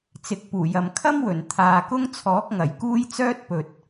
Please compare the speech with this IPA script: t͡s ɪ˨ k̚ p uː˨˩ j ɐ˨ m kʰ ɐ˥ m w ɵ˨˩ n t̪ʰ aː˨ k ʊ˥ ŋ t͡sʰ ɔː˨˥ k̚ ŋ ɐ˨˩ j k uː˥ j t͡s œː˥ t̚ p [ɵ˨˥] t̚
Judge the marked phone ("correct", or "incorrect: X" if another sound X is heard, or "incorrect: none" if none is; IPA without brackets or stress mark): incorrect: ɵ˨